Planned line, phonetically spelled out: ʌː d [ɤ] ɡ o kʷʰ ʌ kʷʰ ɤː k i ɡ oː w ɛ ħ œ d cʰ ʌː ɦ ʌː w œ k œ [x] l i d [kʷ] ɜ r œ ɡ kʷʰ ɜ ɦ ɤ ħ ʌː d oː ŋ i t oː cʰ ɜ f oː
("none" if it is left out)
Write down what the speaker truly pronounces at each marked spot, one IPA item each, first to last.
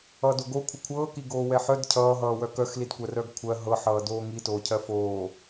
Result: o, x, kʷ

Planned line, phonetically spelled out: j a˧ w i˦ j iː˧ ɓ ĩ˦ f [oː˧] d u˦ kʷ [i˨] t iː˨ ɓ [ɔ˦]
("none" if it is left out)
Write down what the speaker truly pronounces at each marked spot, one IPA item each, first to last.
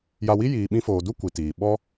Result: oː˧, i˨, ɔ˦

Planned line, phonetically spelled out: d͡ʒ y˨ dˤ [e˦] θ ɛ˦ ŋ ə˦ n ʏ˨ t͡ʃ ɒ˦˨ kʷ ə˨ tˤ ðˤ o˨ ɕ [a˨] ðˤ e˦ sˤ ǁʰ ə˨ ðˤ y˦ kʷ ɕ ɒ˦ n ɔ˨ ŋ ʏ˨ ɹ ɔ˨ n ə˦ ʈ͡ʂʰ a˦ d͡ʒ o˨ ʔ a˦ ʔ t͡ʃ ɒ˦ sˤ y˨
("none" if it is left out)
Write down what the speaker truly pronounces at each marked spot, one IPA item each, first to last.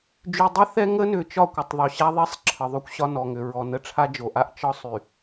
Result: ɛ˦, a˦

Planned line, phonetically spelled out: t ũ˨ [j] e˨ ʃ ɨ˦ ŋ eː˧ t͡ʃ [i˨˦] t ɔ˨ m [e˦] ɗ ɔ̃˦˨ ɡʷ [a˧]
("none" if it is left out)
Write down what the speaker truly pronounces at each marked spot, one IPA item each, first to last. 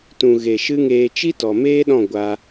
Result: ɣ, i˦, eː˦, a˧

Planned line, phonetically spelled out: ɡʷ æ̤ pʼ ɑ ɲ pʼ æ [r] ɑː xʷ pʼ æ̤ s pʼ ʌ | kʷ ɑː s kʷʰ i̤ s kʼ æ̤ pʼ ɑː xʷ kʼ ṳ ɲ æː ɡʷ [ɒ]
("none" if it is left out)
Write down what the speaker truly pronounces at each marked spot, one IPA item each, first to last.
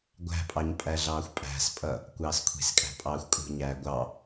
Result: ɮ, ɑ

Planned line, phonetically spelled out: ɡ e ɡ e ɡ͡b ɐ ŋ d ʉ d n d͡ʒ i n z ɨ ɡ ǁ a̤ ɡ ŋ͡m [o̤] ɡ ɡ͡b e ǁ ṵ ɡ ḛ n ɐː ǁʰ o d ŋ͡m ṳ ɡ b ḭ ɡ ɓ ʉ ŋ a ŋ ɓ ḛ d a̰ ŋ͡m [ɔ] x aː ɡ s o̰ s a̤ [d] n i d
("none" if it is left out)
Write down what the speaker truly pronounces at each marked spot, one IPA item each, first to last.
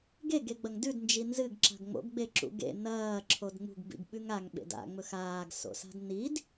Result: o̰, ɵ, d

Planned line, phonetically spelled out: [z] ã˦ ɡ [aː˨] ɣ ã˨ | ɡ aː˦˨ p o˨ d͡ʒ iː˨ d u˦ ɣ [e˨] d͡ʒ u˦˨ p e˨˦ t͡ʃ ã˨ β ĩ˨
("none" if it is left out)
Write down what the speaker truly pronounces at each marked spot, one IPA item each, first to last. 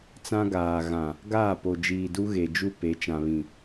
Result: t͡s, aː˨, e˨

